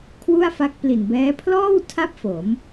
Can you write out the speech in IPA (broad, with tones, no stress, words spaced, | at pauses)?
kʰwu˥˩a̯fa˦˥k̚pli˨˩nbɛː˦˥ pʰlɔː˥˩wtʰa˦˥p̚ fo˩˦m